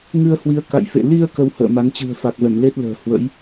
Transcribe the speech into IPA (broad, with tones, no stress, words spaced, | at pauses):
ŋɨ˧ə̯hwi˨˦ə̯ka̰˧˨jfḛ˧˨ li˧ə̯ kə˧whə̰ː˧˨ ma˨˦nt͡ɕɨ̤˨˩ə̯ fa˨˩k̚vɛ˧˩mle˦˥t̚ lə̤ː˨˩ hwə̰˧˥j